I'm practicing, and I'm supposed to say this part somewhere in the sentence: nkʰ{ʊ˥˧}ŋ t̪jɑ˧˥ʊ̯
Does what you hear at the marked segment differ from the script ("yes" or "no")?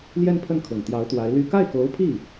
yes